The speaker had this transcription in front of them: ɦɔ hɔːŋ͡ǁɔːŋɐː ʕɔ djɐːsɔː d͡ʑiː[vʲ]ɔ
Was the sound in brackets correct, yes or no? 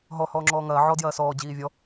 yes